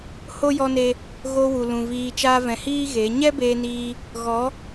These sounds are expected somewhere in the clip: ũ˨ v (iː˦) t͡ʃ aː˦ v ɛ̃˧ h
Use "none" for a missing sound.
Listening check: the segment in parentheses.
iː˧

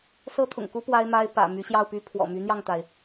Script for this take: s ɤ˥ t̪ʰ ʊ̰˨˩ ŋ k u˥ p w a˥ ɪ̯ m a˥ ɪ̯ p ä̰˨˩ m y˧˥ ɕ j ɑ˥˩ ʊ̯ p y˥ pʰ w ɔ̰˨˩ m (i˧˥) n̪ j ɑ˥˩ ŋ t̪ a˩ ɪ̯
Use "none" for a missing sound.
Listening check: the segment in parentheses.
y˧˥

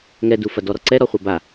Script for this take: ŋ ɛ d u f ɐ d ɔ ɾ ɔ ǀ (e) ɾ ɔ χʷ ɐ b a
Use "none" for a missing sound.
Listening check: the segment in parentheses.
ɛ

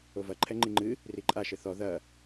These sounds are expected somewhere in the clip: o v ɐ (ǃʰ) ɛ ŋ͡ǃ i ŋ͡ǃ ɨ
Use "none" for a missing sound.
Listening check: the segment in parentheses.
ǃʰ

